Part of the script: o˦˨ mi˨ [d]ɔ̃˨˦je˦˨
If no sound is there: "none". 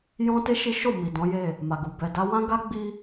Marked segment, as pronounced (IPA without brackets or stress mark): d